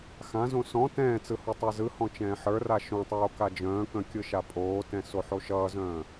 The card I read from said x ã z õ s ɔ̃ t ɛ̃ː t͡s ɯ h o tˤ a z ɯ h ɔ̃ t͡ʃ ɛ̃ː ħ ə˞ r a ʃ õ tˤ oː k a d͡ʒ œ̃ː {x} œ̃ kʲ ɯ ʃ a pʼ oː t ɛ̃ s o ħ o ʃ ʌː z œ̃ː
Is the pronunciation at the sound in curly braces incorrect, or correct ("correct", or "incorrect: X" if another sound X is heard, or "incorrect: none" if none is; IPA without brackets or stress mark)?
incorrect: k